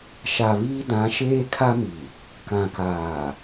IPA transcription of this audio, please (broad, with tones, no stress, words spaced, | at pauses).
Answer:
ʃa˨βiː˦dã˨˦ ʃeː˦kʰa˦mi˨ | kã˨kaː˨